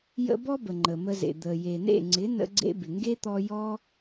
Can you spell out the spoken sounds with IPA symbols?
j ə̰˧ b ɔ˦ b ə˨ ŋ͡ǃ ə˨ m ə˧ z ḛ˨ d̪ ə˨ j e˨ n ḛ˦˨ ŋ͡ǀ ɪ˨˦ n ə̰˦ ɡ͡ǀ ḛ˦ b ɪ˨ ŋ ɡ e˦ t̪ ɔ˧ j ɔ˦

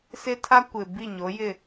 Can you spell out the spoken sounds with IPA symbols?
s ɪ˦ tʰ a˦ kʷ ɪ˨ b i˦˨ ɲ o˨˦ j ɪ˦˨

